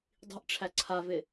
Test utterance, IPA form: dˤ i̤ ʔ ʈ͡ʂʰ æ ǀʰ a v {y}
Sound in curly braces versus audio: incorrect: ɪ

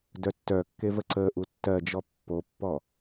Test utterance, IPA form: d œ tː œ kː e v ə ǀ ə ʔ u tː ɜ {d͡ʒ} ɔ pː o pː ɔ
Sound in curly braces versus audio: correct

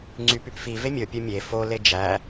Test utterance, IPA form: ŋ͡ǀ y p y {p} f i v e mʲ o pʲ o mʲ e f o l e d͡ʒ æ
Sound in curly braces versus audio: correct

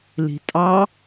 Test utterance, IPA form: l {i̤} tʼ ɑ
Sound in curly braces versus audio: correct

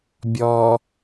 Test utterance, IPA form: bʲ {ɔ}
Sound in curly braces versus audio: correct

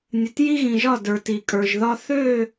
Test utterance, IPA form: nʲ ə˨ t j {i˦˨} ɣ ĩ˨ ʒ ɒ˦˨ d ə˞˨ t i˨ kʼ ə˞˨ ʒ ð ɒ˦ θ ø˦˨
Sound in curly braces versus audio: incorrect: i˦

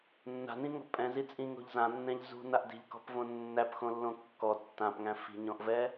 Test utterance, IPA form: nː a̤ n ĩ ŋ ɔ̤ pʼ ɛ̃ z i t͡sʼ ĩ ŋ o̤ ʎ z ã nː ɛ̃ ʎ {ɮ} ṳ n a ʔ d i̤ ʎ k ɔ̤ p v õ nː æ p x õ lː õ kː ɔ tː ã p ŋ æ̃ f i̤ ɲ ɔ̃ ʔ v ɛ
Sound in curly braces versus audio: incorrect: z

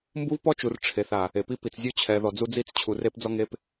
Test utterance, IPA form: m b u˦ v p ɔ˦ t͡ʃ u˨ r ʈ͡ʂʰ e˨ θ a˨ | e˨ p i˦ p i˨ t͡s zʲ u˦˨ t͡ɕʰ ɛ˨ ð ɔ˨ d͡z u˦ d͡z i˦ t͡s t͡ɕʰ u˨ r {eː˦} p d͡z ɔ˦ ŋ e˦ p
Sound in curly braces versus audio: incorrect: e˦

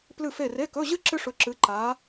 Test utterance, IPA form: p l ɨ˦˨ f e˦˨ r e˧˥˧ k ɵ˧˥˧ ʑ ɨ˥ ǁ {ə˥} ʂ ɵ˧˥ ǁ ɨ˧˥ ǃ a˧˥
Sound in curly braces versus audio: incorrect: ɨ˥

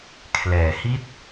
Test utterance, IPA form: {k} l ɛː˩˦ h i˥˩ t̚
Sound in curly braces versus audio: incorrect: kʰ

